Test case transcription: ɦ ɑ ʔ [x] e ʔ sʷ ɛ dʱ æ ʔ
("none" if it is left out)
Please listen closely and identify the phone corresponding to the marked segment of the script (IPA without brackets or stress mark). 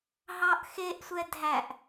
x